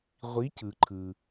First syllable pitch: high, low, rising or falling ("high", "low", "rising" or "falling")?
rising